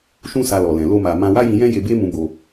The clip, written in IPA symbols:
ʃũ˦sa˧ lɔ˨lɛ̃˨ lo˧ma˨ mã˧wa˦jĩ˧jɛ̃˦ je˧be˦mũ˧bo˧

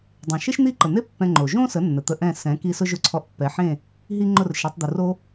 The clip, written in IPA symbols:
dˤẽ˩ ʃe˥ʃn̪i˥˩ǃə˩n̪e˥ pːɛ̃˧ ŋ͡ǃo˩ʒõ˥sə˩˥nːə˩ t̪ə˧ʔɛ̃˥˩ sɛ̃˩˥ ki˥ sʊ˥ʒʊ˥˩ǀʰɔ˧ʔ pːɛ˩˥ħẽ˥˩ | ɦi˥ ŋ͡ǃʊ˥˩rʃɛ˩˥tˤ d̪ʊ˩ro˥

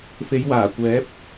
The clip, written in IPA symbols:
fe˨˧jwaː˨˩ kʷɛː˨˥p̚

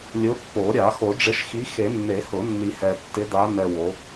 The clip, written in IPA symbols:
lʲʊ˨˦pːo˨˩˦ɾʲa˨˩˦ xo˨˩˦ɖ͡ʐɪ˨˦ʃxi˨˦xe˨˩˦ nːe˨˩˦hʊ˨˩˦ nːi˨hɛ˨tːɪ˨˦ da˨˦ nɛ˨ wo˨˦

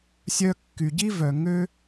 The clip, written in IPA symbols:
sʲœ˧kːy˩ɟi˥vœ˩ ŋø˥

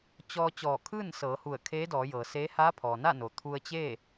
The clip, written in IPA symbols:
t͡ɕɔː˧ t͡ɕɔː˧˩kʰɯː˥˨n sɤː˩˧hu˧˩ə̯kʰeː˧˥dɔː˩˧ jɤː˩seː˧˥ haː˧˥pʰɔː˩na˥˨noː˩ t̪ʰu˧ə̯t͡ɕeː˥˨

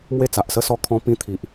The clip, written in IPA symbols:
mwe˥˧t͡sa˨ʔsə˥˧sɔ˦ kʰɔ̃˦pĩ˦t̪ʰi˨ʔ

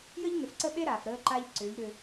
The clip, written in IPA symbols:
jə˦ʎnʏ˨fǀə˦ɓe˦ ɾaː˨fɾəː˦ǃa˦ʎ ǀʏː˨˦ʎɾʏ˦

